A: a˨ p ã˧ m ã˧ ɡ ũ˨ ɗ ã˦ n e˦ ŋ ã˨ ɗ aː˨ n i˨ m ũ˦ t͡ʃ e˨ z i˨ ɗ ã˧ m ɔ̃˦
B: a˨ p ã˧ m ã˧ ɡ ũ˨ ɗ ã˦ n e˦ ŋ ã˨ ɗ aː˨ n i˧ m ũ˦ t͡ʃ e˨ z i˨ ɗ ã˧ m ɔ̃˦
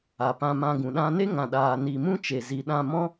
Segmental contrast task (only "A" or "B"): A